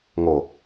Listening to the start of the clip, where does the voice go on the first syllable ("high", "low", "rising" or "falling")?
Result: low